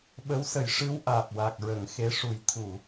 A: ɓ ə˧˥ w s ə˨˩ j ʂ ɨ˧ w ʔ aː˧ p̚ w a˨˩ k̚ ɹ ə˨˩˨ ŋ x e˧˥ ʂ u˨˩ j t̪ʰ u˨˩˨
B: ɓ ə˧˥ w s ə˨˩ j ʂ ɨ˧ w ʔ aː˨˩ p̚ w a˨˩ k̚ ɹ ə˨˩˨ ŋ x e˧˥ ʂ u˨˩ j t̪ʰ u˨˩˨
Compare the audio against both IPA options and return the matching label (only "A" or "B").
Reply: B